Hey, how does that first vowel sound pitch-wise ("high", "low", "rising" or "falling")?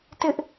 high